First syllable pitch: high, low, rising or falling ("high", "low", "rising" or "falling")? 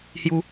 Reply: high